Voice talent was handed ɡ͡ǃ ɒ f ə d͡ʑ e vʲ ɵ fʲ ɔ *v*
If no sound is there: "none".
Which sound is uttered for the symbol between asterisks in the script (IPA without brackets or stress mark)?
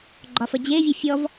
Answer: v